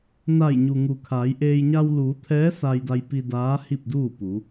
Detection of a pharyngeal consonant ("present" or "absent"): absent